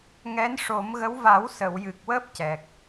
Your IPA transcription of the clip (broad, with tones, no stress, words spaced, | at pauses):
ŋɛ˧˥nʂo˨˩˦mɣə˧˥w va˨˩˦wsə˨˩˨wjɨ˨˩k̚ wəː˦˥p̚cɛ˨˩k̚